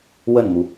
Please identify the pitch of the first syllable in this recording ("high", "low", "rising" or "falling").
falling